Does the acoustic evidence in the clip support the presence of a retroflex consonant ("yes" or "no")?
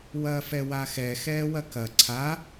no